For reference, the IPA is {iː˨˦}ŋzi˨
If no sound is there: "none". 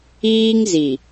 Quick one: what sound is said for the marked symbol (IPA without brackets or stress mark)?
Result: iː˦